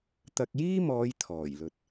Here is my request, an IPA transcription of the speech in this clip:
t̪ɐ˧k̚ jiː˥mɔː˨˧j t̪ʰɔː˨˩jlɵ˨t̚

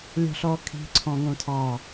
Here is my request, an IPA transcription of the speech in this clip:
lʲɔ̤ɬɔkʰi̤ ǀʰɔ̃ŋõtʰɑ

